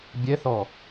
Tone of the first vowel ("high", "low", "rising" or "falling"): rising